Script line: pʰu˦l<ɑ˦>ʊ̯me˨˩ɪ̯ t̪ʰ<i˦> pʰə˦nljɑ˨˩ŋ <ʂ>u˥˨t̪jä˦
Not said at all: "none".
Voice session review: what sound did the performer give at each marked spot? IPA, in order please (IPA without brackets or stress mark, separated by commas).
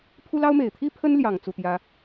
ɑ˦, i˦, t͡s